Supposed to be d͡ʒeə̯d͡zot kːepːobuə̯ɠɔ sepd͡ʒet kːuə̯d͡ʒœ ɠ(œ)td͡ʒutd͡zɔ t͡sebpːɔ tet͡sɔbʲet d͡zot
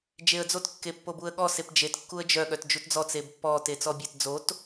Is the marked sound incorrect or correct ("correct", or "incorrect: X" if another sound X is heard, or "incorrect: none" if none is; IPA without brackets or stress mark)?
correct